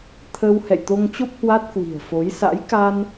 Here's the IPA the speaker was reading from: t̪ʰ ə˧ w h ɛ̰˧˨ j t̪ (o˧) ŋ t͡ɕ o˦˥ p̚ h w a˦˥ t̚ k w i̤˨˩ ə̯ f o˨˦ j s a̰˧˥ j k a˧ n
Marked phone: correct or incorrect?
correct